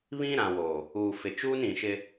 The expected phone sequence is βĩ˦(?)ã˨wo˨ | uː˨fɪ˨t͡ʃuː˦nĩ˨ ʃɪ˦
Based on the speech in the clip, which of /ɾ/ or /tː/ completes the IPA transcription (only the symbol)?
ɾ